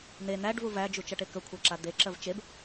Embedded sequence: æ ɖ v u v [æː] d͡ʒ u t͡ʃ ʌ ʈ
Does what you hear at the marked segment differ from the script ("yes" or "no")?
yes